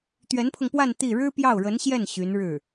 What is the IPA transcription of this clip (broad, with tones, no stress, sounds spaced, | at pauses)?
t̪ ɥ ɛ˧˥ n pʰ ʊ˧ ŋ p w a˥˧ n t̪ i˥˩ ɻ ɻ̩˥ p j ɑ˥˩ ʊ̯ ɻ ə˧˥ n ɕ j ɛ˥˩ n ɕ y˧˥ n ɻ ɻ̩˥˩